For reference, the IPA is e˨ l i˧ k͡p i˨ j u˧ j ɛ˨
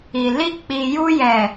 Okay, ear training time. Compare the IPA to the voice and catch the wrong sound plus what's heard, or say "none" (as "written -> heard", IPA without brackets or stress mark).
e˨ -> i˨